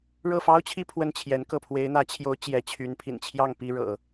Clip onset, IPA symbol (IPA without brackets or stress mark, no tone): ɻ